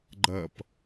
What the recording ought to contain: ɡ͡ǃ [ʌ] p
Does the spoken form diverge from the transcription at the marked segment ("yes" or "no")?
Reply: no